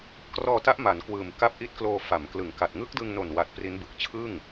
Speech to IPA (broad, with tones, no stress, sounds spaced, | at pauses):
k r ɔː˧ t a˦˥ ʔ m a˩˦ n k w ɯː˨˩ m k a˦˥ p̚ ʔ i˦˥ t̚ k l oː˧ f a˩˦ m k l ɯ˩˦ ŋ k a˨˩ t̚ ŋ ɯ˦˥ k̚ d ɯ˧ ŋ n o˨˩ n w a˨˩ t̚ p r i˦˥ n b ɯ˨˩ k̚ t͡ɕʰ ɯ˥˩ ŋ